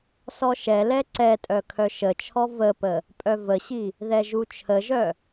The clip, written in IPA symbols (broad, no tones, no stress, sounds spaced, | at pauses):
s ɔ ʃ ɛ l ɛ ǀ ɛ tʼ œ kʰ œ ʃ ə t͡ʃʰ ɔ v ə p ə | pʼ œ v ə ɕ i | ð ɛ ʒ u t͡ʃʰ ə ʒ œ